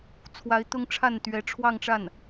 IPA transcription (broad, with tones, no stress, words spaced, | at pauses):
t͡sʰwa˧˥ɪ̯t̪ʊ˥ŋʈ͡ʂʰa˥˩nt̪ɥɛ˧˥ ʈ͡ʂʰwɑ˥˧ŋʈ͡ʂa˥˩n